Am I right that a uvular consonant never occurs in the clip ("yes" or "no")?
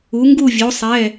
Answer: yes